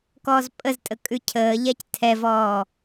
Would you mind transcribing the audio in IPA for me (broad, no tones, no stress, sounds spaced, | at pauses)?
k ɔː z pʼ ə z tʼ ə kʼ ʉ cʰ əː ʎ ɛ c tʰ ɛ v ɔː